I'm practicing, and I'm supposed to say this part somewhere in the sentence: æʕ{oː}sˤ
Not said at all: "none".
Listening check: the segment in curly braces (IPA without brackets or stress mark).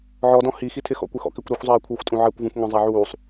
uː